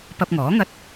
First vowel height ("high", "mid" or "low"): low